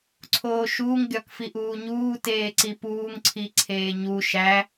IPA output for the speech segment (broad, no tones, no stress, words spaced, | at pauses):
ǀʰoːʃuːŋ ɡʲɒkfiʔuːɲuː teːǀipuːŋ ǀʰiǀʰeːɲu ʃæ